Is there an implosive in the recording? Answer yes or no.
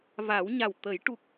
no